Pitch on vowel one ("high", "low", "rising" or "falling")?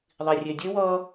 low